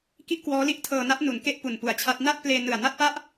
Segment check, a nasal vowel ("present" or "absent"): absent